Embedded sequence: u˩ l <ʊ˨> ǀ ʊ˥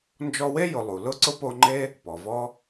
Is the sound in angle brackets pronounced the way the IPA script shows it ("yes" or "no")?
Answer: no